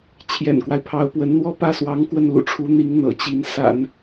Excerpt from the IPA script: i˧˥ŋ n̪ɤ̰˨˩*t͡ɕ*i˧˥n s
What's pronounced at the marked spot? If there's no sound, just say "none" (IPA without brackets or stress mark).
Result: t͡ɕ